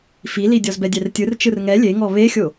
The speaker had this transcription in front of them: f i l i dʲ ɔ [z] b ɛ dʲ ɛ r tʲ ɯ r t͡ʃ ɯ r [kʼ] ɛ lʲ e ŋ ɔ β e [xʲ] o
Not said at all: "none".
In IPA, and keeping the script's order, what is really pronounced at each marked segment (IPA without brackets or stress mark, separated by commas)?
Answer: z, ŋ, xʲ